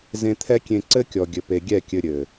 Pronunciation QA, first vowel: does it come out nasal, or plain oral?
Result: nasal